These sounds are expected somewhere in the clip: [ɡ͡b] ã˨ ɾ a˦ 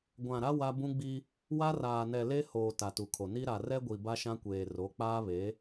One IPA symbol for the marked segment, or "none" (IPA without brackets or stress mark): ɡʷ